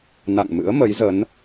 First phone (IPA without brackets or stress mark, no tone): n